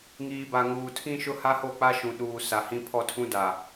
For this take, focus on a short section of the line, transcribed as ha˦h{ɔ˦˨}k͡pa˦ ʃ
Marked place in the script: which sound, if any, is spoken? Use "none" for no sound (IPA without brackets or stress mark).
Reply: o˦˨